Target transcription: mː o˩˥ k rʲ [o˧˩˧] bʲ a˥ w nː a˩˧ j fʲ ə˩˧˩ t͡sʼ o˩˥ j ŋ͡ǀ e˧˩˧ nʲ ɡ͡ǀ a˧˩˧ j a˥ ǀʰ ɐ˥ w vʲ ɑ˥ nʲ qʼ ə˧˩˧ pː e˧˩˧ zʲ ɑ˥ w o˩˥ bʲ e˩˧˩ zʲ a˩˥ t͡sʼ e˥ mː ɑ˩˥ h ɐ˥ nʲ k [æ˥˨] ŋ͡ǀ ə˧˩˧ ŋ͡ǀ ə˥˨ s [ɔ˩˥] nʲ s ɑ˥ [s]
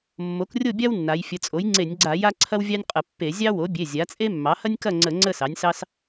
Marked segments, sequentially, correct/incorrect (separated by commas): incorrect, incorrect, incorrect, correct